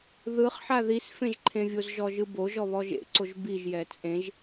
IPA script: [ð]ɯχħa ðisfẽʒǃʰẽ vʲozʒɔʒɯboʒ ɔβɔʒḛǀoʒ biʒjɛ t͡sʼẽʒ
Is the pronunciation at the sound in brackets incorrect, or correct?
correct